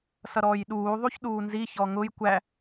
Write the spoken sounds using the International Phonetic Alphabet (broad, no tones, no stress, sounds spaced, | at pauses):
s ʌ ɾ ɔː j ɗ uː ðˤ u ç ɗ uː n z i ç ɔ ŋ ʊ j kʷ æ